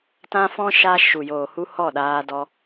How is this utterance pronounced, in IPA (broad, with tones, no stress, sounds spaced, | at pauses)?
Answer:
t ã˦ f ɔ̃˦ ʃ a˧ ʃ u˨ j oː˨ h u˧ h ɔ˦˨ ɗ aː˧ d ɔ˧